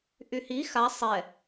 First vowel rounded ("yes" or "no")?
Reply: yes